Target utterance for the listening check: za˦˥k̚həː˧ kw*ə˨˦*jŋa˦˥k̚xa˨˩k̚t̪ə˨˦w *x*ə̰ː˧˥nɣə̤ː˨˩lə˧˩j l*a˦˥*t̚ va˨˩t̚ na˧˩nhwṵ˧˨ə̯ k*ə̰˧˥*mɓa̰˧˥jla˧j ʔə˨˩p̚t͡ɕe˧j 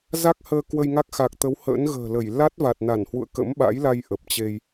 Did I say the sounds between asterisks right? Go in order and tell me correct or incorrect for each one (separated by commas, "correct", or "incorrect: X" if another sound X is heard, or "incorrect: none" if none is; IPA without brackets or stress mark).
incorrect: ə˧, incorrect: h, correct, correct